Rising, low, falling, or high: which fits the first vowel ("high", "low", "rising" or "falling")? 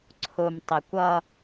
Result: low